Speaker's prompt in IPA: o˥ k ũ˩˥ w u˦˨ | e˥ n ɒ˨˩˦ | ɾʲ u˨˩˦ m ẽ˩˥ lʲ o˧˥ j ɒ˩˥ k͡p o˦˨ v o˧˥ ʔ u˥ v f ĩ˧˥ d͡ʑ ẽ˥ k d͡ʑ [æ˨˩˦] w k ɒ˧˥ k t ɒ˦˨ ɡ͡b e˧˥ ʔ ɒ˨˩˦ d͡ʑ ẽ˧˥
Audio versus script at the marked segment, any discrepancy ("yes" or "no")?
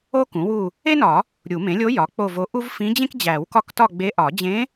no